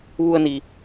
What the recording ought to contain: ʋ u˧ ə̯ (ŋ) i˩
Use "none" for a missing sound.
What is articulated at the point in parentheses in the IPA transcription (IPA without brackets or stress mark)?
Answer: n